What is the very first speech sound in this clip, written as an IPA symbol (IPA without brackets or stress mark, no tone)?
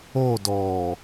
o